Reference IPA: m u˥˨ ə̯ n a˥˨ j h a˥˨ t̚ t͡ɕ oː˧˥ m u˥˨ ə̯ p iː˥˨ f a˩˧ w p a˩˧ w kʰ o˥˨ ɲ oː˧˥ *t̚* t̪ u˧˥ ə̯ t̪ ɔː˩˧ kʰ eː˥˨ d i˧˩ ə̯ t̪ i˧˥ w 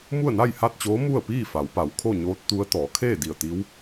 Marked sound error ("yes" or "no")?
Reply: no